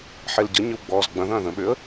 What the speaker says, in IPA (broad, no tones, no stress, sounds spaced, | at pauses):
ħ e l ɟ ə ɲ ʏ w ɡ͡b ɔː z ɡ͡b ɐ̃ ð ɐ̃ː ð ə̃ ɓ ʏ ə̯